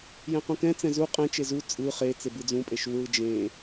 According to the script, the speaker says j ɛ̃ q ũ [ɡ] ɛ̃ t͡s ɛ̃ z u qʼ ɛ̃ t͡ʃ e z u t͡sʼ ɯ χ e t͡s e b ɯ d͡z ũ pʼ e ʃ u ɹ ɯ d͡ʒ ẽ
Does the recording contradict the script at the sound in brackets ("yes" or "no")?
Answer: yes